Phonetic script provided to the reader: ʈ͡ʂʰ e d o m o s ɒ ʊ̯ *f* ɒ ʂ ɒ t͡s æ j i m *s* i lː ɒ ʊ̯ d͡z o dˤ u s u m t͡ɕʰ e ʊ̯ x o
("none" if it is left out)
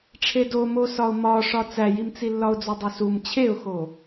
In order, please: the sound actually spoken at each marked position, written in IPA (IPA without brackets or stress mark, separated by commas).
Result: m, t͡s